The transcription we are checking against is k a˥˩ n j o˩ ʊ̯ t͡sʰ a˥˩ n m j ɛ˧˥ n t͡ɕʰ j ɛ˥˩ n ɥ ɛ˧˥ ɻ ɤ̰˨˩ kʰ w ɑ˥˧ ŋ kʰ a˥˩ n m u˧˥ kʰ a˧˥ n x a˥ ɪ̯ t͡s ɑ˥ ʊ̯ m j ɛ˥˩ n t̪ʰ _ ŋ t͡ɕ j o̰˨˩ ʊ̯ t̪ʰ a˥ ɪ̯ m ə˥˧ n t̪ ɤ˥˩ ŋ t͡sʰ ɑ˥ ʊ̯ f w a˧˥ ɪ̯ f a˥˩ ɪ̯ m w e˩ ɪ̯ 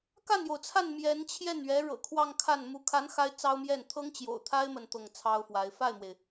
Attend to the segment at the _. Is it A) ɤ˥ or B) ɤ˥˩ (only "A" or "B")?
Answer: A